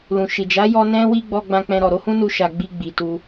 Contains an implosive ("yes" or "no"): no